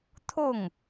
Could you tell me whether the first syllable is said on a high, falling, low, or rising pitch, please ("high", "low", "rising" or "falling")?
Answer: falling